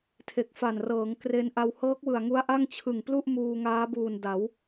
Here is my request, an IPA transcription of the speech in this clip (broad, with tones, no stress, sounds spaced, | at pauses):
tʰ e˨˩ k̚ f a˨˩ n r ɤː˩˦ ŋ k r e˧ n ʔ a˧ w h ɤː˦˥ k̚ w ɯ˨˩ a̯ ŋ u˦˥ a̯ ʔ a˥˩ ŋ t͡ɕʰ ɯ˨˩ ŋ p l u˥˩ ʔ m uː˧ ŋ aː˦˥ b uː˨˩ n d a˩˦ w